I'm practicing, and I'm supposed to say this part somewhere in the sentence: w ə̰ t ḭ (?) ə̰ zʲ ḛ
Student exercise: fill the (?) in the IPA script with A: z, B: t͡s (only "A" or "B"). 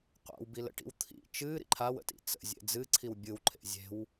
B